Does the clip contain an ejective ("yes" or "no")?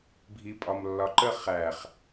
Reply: yes